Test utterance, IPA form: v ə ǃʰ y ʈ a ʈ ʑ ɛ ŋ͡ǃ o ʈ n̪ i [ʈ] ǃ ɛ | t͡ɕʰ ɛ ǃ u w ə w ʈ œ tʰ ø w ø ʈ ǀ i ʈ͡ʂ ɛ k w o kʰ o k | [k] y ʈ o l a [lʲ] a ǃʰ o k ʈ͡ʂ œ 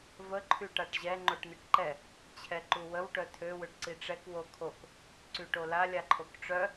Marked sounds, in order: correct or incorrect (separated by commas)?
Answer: correct, incorrect, correct